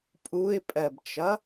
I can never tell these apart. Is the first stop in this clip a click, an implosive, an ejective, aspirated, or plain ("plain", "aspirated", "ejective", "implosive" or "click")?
ejective